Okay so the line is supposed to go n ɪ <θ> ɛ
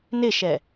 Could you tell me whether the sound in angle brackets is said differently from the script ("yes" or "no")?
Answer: yes